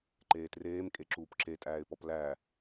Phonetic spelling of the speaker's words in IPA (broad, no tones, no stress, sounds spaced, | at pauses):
ǃ eː t r eː m kʼ e ǁ uː p ǁ e tʼ æː ɪ̯ p ɔ p l æː